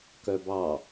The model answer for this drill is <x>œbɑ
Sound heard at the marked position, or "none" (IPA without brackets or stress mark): k